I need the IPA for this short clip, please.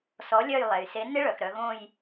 s ɔ˨˥ lʲ œ˦˨ j lˠ ɛ˩ j s e˨˥ n ɪ˦˥ ɭ œ˩ x ɾ œ˩˧ ɣ õ˦˨ j

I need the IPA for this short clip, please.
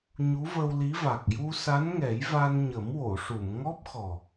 ɲ u˧˥ v ə˧ w l i˧˥ v a˨˩ k̚ j u˧ s a˧˥ n ŋ ɛ˨˩˦ j v a˧ n ɲ ə˨˩˦ m w o˨˩˨ ʂ u˨˩˨ m ŋ ɔ˦˥ p̚ x ɔ˨˩

